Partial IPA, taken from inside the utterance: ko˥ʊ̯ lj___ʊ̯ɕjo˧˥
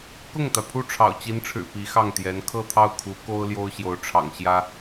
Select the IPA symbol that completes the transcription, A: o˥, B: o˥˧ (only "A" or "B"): A